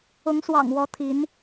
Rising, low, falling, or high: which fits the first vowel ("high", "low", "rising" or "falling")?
rising